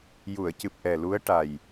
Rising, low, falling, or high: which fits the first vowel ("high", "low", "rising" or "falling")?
low